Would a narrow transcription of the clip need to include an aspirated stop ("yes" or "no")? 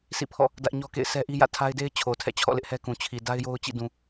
yes